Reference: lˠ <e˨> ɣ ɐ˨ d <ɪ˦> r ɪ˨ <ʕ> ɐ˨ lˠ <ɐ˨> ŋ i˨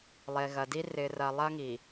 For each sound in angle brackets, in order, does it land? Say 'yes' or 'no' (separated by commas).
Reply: yes, no, no, no